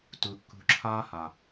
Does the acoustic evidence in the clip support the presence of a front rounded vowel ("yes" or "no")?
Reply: no